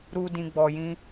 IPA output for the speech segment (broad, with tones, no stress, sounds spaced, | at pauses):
ɾ u˧ d ĩ˧ ɡ͡b ɔ˧ j ĩ˦